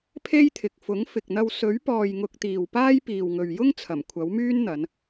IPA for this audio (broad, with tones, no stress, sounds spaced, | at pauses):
pʰ e˥ j t̪ʰ ɪ˨ k̚ f ʊ˨˥ ŋ f ɪ˨ k̚ n̪ ɐ˧ w s ɵ˨˥ ɥ p ɔː˨ j ŋ ʊ˧ k̚ t̪ iː˨ w p aː˥ j p iː˨ w ŋ ɵ˨ ɥ j ʊ˥ ŋ t͡sʰ ɐ˨˩ m kʷʰ ɐ˨˥ w m yː˥ n n̪ ɐ˨˧ n